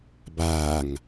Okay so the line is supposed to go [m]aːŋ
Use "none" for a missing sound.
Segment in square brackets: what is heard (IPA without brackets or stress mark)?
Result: b